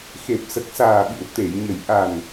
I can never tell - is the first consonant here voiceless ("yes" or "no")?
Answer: yes